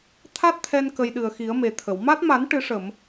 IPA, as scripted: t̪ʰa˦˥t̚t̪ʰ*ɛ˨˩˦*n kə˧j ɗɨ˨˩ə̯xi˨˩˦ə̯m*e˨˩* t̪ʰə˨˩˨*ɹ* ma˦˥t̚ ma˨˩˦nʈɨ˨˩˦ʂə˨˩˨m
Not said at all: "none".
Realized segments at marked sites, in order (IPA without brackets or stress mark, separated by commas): ɛ˧, e˨˩, w